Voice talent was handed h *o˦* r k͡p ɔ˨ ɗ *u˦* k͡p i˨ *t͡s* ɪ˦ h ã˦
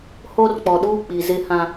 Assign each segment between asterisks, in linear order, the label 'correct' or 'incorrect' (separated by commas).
correct, incorrect, incorrect